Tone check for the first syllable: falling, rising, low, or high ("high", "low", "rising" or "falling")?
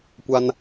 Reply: high